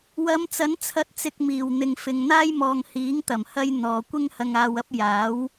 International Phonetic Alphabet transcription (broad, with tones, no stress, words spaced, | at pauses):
wɐ˨˧mt͡sɐ˨˥nt͡sʰɐ˨˥t̚t͡sɪ˨k̚ miː˨˩w n̪ɪ˨ŋfɪ˨ŋn̪aː˥j mɔː˨ŋhiː˨˥ŋ t̪ɐ˨˩mhɐ˧j n̪ɔː˨ kʷɪ˥ŋhɐ˧ŋaː˧wɐ˥p̚ jaː˨˥w